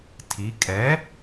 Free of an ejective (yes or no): no